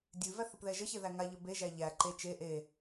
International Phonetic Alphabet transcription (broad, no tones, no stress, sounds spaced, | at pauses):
dʲ ʉ v æ θ ə p ð ɛ ʒ ə ç e ð æ ŋ a ʎ ə b e ʒ æ ʎ æ ǃ e t͡ʃ e ʔ e